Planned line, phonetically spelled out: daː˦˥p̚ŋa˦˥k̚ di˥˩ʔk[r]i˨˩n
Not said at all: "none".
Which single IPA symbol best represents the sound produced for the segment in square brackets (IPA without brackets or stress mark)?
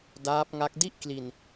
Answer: l